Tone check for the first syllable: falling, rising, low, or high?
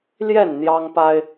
falling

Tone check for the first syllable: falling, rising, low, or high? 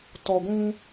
low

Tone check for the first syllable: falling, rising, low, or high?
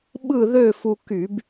falling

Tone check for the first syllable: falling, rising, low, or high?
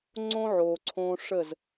high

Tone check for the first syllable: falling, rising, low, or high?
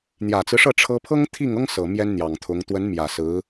low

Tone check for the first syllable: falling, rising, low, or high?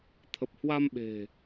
low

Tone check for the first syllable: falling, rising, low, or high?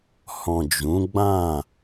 low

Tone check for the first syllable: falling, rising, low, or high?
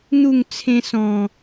falling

